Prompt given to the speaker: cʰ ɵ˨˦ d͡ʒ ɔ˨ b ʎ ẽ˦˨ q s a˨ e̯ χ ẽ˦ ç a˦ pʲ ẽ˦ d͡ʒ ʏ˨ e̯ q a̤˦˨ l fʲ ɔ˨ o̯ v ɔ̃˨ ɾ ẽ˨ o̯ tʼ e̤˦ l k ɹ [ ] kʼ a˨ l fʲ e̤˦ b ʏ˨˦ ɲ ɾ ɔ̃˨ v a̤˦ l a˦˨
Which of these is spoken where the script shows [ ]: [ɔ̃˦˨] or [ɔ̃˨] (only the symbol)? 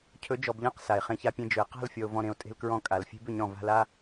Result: ɔ̃˦˨